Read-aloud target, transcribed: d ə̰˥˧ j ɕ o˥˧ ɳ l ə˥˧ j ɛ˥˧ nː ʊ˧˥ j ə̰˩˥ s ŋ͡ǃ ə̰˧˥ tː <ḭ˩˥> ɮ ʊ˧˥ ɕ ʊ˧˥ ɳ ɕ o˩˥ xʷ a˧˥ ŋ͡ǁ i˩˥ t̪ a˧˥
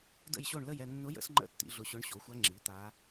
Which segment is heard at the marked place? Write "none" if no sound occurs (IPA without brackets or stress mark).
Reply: ḭ˩˥